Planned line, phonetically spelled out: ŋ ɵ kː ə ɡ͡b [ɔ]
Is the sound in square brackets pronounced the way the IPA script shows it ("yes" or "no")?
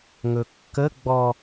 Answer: yes